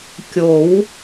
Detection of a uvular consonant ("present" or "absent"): absent